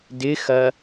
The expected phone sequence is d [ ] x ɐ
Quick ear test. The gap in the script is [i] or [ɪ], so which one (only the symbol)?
ɪ